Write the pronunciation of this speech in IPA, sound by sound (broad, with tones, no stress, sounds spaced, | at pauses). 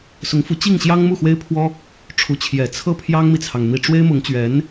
s ʊ˧˥ ŋ f u˧˥ t͡ɕ i˥˩ ŋ ɕ j ɑ˥ ŋ m u˥˩ x w e˥ ɪ̯ pʰ w ɔ˥ | ʈ͡ʂʰ u˧˥ t͡ɕʰ j ɛ˨˩ t͡sʰ ɤ˥ pʰ j ɑ˥ ŋ m i˨ t͡sʰ ɑ˩ ŋ n̪ i˨˩ ʈ͡ʂ w e˥ ɪ̯ m ʊ˧˥ ŋ t͡ɕ ɥ ɛ˧˥ n